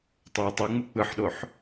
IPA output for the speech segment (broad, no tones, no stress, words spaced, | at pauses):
tˤoə̯tˤiŋ͡mɯ k͡pɯħɗoħ